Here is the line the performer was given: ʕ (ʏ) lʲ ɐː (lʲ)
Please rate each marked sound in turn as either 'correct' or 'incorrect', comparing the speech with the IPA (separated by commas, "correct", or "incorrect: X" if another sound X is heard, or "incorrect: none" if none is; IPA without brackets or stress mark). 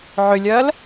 correct, incorrect: l